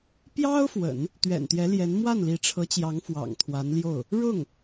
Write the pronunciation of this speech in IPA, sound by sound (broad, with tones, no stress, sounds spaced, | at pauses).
p j ɑ˥ ʊ̯ f w ə̰˨˩˦ n | t̪ ɥ ɛ̰˨˩ n t̪ j ɛ˧˥ l j ɛ˧˥ n m w a˥˩ n l i˧˥ ʈ͡ʂʰ ɤ˧˥ t͡ɕ j ɑ˧˥ ŋ f w ɑ̰˨˩ ŋ t̪ʰ w a˧˥ n l j o˥˩ ʊ̯ | ɻ ʊ˥˩ ŋ